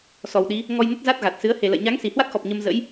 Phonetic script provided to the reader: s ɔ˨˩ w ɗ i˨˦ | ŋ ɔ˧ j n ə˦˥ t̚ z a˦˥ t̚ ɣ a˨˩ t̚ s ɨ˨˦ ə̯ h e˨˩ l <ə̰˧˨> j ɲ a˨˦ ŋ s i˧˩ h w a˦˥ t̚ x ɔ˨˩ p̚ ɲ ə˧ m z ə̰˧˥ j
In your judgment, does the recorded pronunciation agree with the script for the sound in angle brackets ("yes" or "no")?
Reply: yes